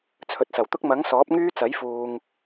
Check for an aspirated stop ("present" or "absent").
present